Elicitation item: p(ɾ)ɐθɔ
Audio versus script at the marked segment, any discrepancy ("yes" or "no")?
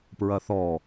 yes